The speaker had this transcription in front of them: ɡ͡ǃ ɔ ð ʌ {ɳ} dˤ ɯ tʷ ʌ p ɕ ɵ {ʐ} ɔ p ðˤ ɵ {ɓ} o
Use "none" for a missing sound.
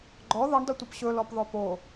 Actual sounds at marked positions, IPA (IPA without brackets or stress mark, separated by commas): ɳ, l, p